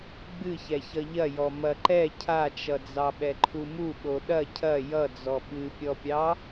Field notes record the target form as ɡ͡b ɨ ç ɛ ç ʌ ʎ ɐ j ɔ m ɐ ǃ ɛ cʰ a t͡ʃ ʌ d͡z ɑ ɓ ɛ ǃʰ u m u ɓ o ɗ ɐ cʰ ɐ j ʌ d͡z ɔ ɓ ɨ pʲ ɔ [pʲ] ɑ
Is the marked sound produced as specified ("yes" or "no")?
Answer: yes